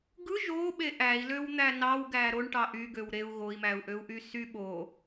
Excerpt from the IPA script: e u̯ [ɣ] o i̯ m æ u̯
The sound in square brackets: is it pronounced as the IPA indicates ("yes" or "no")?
yes